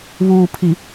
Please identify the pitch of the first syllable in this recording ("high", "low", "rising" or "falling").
low